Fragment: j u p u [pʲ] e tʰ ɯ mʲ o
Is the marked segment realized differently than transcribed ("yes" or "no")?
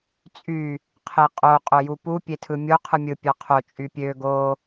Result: no